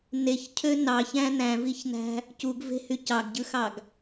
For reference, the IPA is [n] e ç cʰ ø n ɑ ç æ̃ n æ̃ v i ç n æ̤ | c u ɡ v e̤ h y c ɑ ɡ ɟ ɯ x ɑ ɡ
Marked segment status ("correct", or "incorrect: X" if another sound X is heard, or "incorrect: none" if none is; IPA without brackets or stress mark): correct